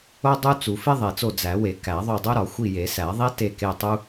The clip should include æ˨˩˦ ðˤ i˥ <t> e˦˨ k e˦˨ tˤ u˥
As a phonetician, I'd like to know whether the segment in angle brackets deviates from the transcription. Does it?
no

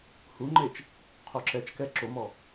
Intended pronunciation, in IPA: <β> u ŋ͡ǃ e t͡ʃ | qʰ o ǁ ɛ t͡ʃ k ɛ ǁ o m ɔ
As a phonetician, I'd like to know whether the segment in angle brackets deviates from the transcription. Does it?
yes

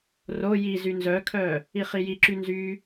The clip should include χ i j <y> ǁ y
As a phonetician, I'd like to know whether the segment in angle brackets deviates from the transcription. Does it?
yes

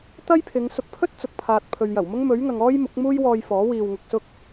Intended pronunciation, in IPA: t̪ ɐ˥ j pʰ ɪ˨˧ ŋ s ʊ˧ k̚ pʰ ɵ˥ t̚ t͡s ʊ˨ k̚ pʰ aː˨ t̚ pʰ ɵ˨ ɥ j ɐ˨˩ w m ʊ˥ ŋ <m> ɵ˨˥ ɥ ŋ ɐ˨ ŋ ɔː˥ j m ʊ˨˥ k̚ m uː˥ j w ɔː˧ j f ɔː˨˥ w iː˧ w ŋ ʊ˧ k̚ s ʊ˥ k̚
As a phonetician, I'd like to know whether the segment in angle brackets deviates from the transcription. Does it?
no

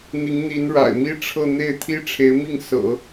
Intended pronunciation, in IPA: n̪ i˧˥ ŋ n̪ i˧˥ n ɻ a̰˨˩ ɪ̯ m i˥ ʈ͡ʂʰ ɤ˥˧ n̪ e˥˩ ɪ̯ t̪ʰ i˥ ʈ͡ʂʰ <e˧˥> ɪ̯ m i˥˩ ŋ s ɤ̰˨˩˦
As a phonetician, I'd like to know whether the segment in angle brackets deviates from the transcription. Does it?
no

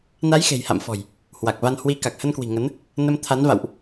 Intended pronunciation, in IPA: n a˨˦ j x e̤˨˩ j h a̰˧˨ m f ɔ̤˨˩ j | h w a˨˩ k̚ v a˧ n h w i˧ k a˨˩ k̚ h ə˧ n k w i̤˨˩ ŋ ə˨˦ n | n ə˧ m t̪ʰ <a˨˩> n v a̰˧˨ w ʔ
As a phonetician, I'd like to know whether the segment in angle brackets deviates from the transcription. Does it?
yes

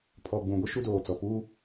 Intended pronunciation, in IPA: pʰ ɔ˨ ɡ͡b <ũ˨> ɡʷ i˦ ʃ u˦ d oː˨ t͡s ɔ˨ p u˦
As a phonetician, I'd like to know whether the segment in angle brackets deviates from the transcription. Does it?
no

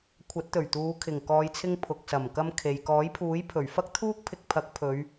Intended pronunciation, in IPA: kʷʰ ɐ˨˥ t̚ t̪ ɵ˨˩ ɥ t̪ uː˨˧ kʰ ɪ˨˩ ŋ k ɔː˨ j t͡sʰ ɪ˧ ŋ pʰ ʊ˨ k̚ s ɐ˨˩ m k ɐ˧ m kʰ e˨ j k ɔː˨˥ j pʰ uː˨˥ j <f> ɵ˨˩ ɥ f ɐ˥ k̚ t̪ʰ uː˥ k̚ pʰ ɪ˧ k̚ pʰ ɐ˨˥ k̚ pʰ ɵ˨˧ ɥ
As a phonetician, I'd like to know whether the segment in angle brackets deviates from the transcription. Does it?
yes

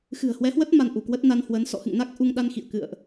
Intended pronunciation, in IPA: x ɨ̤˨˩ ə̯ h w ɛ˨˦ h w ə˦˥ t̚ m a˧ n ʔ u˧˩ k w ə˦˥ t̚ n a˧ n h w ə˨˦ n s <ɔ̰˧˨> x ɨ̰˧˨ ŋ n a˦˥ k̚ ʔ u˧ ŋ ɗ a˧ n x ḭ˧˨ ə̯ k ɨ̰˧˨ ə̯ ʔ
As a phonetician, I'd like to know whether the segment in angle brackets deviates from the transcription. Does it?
no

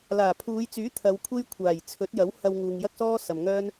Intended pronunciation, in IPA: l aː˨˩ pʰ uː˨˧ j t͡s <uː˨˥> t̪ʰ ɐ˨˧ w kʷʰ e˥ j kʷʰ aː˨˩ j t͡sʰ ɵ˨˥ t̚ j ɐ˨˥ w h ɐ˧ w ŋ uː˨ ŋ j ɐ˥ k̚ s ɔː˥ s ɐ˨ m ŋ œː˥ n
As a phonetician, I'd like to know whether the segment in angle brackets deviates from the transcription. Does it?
yes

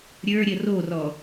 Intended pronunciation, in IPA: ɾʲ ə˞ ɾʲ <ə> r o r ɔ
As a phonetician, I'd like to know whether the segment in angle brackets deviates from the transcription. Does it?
no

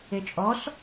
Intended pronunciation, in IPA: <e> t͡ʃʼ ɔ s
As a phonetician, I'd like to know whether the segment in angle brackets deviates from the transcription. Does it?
no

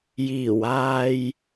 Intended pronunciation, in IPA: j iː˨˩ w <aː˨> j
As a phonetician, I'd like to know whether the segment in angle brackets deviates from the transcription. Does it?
no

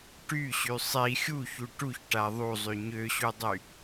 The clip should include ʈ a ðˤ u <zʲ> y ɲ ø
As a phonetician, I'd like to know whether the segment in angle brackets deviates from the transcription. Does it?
yes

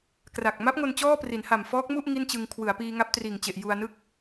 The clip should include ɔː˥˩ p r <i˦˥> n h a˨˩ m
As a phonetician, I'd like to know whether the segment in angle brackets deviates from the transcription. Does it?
yes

